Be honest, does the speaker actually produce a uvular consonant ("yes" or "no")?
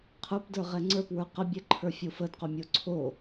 yes